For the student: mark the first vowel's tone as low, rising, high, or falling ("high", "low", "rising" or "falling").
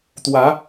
rising